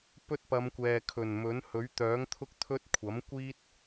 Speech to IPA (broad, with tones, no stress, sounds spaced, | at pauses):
p ɵ˥ t̚ p ɐ˨˧ m kʷ ɛː˨ kʰ ɵ˨˩ n m ɵ˨˥ n h ɵ˨˥ ɥ t̪ œː˨˥ ŋ t̪ʰ ʊ˥ k̚ t̪ʰ ɵ˥ t̚ kʷʰ ɐ˨˥ m kʷ iː˥ t̚